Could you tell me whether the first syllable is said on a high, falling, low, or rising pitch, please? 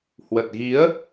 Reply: low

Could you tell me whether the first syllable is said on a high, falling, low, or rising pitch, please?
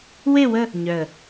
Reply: falling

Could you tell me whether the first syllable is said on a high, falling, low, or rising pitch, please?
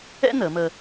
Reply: high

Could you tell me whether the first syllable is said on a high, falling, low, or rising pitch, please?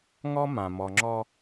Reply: high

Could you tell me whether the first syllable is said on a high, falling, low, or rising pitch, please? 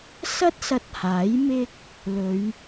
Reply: high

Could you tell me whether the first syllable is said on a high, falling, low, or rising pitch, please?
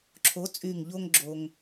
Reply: rising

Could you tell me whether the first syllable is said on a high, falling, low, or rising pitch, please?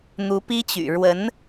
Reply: rising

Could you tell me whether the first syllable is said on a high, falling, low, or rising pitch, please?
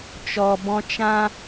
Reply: low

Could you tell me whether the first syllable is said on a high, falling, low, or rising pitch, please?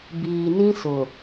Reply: low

